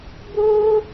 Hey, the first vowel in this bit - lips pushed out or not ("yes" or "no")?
yes